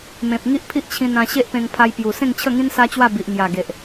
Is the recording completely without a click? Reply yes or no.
yes